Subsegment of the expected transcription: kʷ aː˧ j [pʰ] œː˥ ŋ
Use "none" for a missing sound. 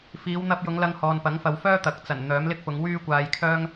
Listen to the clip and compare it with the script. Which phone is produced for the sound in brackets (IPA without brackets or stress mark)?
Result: kʰ